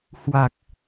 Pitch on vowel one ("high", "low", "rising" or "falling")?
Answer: low